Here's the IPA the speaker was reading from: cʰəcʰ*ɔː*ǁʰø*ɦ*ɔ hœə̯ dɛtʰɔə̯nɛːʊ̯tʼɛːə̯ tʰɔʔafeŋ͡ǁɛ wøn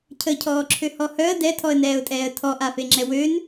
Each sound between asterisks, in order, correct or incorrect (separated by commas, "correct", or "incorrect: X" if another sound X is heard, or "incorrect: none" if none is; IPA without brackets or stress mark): correct, incorrect: h